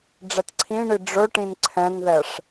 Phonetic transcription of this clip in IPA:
ɖ͡ʐɛtǀʰĩɳi ɖ͡ʐɵʈĩn ǀʰɛ̃nðɛʂ

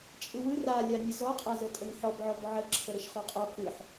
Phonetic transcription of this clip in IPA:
t͡ʃʼɯwɯ ralʲanʲə zɔqʼazə tʼəŋħɔbʕɔb ʕə ǁʰəɾəʃχɔqʼɔ kɯħ

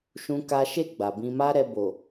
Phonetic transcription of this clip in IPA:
ʃũ˦ka˦ ʃe˦˨ ɡ͡ba˨bĩ˧ ma˦ɾɛ˧ bo˨

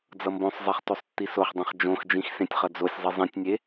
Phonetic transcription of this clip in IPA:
d͡zʌmbõsˤzˤeχ tosˤtːisoχdˤẽχ d͡ʒõxd͡ʒĩx sẽtʲχʌd͡zosʲzˤi zˤĩtʲnʲe

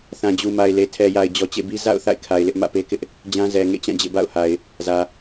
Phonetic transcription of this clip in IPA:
θã˨d͡ʑu˨ ma˨ɪ̯le˨tʰɛ˨ja˨ɪ̯ d͡ʑɔ˨t͡ɕḛ˦˨bi˦ za̰˦˨ʊ̯ θa̰˦˨ɪ̯kʰa˨ɪ̯ lɪ˦ʔ mä̰˦˨pe˦kɪ˦ʔ | d͡ʑã˦ zɛ˨ ŋḛ˦˨t͡ɕã˦˨ d͡ʑḛ˦˨ba̰˦˨ʊ̯ha˨ɪ̯ | zä˨

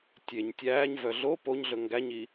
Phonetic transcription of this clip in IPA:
tʲeɲ tʲæːɲvœ ɮo poɲɮɵ ŋɡæɲi

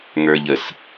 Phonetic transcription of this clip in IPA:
ŋə˞ʎəs

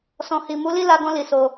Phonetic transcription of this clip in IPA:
sɔ̃˨hi˨ mu˨˦li˦˨la˧ɡɔ̃˧ li˨so˧

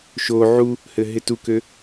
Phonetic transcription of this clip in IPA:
ʃo ʕu | hɘɦɪtukø

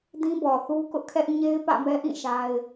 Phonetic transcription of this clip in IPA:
dĩ˦bɔ˨θu˦ kʊ˦ʔkʰɛ˦ʔ ɲe˦ɪ̯ pä̰˦˨mɛ˦ʔĩ˦˨ ʃa˦ɪ̯

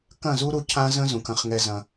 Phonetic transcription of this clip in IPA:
kɐ̃˦˨zu˦ɾu˧ cʰã˦zə̃˦ zũ˨kɐ̃˧χŋɛ˧zɐ̃˧

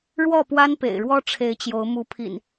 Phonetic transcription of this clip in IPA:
ɻwɔ˥˨pwa˦n pḛ˨˩ɪ̯ɻwɔ˦ʈ͡ʂʰe˨˦ɪ̯ t͡ɕjo˨˦ʊ̯ mu˨˦pʰḭ˨˩n

